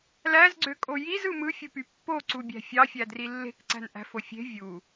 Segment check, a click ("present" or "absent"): present